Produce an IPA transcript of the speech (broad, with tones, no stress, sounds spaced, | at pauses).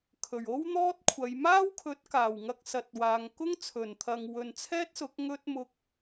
kʰ ɵ˨˩ ɥ o˥ w n̪ ɔː˥ t̚ kʷʰ ɐ˨˧ j m aː˥ w kʰ ɵ˨˥ t̚ k aː˨˩ w ŋ ɐ˧ k̚ s ɐ˧ t̚ w aː˧ ŋ k ʊ˥ ŋ t͡sʰ ɵ˨˩ n t̪ʰ ɐ˨ ŋ w ɵ˨ n t͡sʰ ɛː˥ t̚ s ʊ˨˥ k̚ ŋ ɵ˥ t̚ m ʊ˧ k̚